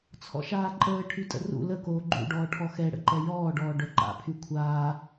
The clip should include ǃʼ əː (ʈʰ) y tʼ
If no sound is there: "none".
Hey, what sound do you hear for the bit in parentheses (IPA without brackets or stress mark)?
ʈʰ